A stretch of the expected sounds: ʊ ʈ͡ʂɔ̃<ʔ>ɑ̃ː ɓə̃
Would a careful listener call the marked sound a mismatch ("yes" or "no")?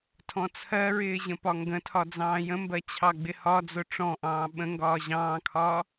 no